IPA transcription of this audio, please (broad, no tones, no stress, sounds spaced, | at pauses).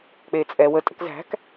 k͡p e t͡sʼ ɛ w ə tʼ ə̤ k z æ̤ k